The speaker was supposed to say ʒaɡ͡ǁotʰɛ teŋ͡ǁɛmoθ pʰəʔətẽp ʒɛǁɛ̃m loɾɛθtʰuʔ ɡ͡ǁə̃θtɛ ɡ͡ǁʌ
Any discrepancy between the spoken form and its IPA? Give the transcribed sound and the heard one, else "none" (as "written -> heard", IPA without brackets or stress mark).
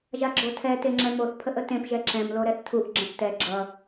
none